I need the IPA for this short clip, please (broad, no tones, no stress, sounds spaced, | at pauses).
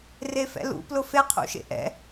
r e f ɛ̰ l ṵ p l ʊ f e qʰ ṵ ʃ ḛ ʔ ɛ̰